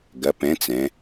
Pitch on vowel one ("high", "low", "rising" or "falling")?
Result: rising